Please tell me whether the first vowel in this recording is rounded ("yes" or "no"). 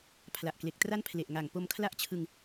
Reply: no